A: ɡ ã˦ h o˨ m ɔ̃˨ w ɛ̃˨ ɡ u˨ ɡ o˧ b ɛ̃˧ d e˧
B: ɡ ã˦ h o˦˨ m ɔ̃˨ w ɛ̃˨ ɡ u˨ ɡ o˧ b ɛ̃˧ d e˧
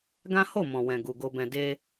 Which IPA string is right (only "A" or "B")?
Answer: B